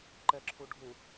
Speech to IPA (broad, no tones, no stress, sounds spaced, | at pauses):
ǃ ɛ ǁʰ u ɖʱ u